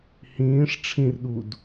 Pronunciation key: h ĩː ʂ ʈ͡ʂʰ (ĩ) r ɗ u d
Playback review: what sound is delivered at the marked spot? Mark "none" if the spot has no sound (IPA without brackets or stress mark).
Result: ĩ